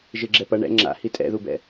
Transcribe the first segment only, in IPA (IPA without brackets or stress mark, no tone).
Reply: ʒ